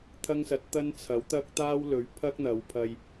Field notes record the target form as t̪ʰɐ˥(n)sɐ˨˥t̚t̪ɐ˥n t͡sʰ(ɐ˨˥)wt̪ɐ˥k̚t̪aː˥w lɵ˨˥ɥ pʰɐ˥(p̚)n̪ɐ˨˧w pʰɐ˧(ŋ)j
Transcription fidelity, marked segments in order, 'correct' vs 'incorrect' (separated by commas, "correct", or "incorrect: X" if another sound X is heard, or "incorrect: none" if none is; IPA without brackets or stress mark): incorrect: ŋ, correct, incorrect: k̚, incorrect: none